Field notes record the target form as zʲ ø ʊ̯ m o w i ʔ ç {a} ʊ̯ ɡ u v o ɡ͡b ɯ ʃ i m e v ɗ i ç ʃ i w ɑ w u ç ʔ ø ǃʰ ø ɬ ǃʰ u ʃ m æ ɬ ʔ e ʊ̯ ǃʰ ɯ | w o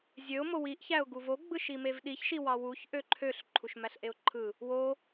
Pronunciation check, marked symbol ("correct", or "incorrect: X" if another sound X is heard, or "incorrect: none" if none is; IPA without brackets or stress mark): incorrect: æ